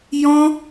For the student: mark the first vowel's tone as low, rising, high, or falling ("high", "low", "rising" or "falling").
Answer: high